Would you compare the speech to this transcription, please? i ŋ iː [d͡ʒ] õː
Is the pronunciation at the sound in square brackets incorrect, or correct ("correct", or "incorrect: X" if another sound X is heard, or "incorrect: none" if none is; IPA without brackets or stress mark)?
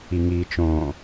incorrect: t͡ʃ